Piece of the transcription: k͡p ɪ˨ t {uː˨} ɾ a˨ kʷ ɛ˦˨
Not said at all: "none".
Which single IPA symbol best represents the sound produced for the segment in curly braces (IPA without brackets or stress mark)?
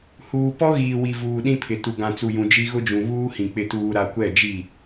uː˨